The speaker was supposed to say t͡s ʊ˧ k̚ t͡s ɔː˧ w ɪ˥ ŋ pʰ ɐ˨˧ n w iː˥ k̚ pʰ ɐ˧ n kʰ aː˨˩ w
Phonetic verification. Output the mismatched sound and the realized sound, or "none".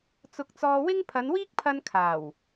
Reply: none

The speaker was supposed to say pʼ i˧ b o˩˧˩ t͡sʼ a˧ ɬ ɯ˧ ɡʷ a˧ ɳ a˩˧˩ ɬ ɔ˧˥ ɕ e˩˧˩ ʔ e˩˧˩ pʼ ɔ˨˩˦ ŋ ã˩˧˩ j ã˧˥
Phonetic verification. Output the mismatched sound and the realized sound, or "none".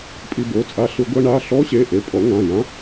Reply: none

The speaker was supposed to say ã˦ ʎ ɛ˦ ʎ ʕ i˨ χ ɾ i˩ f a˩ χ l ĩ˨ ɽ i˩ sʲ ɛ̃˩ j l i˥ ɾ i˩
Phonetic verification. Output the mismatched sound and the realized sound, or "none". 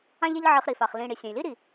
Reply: none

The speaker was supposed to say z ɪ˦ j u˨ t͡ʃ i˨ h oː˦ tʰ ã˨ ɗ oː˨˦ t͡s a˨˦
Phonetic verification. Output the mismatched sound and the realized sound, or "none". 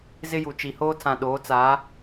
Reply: none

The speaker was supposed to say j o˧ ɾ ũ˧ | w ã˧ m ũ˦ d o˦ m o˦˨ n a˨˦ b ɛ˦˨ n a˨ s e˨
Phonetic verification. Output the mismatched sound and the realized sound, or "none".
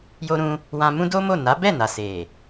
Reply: none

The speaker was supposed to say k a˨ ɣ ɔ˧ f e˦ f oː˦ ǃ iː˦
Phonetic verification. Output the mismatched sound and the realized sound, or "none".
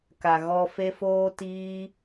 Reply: ǃ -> t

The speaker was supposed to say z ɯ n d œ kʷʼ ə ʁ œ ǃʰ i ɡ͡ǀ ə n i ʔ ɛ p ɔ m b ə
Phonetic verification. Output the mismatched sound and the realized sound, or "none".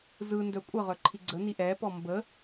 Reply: none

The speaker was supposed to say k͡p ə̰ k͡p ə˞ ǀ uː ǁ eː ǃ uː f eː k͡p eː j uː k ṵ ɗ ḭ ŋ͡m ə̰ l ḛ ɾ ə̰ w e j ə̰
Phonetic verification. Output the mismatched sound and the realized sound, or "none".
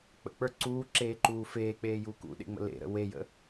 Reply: ḭ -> ḛ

